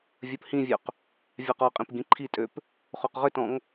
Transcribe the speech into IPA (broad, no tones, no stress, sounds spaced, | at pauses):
vʲ ɜ p h ĩ vʲ ø q | vʲ ɑ q ɔ qʼ ĩ p ɡ ĩ ǃʰ i tʼ ø p | χ o q ʁ ʏ t ɔ̃ ŋ